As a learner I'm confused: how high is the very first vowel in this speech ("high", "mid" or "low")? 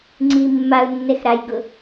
high